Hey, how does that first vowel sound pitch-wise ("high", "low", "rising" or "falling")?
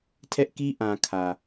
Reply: high